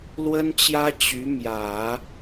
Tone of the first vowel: high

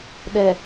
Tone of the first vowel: low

